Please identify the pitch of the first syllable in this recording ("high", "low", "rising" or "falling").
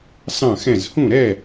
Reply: falling